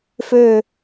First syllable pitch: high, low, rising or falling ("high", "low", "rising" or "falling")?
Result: falling